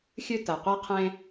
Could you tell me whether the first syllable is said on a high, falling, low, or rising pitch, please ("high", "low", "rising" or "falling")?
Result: high